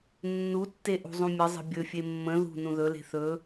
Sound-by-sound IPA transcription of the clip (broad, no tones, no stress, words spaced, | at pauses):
nːutːe ʔṳzˤũmʲəzˤə̤ bʲɵfʲe mːə̃ ðṳ nũðɵle̤ θɵ